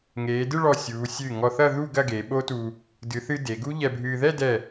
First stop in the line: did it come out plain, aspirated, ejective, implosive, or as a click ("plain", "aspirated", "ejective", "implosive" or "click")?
plain